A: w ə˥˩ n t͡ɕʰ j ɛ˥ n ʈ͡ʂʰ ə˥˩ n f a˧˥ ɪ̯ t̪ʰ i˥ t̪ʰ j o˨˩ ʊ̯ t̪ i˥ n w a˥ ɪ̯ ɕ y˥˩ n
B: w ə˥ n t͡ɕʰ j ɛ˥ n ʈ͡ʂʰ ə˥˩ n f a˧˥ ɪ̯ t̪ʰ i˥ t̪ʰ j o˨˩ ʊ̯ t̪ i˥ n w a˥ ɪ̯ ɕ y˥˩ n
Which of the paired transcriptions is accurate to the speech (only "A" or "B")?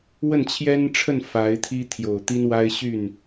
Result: A